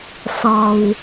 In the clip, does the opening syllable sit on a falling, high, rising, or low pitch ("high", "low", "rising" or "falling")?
low